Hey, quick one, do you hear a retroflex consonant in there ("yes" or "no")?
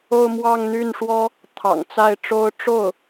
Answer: yes